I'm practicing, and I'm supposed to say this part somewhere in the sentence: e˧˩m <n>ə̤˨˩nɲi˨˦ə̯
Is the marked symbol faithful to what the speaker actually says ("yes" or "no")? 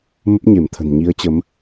no